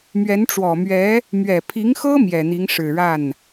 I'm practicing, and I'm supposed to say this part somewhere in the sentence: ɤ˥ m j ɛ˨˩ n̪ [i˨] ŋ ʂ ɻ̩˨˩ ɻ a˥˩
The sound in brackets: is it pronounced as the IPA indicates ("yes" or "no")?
no